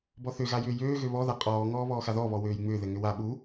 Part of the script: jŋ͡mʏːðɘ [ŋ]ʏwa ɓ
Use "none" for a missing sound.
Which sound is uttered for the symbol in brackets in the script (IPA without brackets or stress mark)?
ŋ